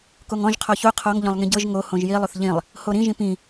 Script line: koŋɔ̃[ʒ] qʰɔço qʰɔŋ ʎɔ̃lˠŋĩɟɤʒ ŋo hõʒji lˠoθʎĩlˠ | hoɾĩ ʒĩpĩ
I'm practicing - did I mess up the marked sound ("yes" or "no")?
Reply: no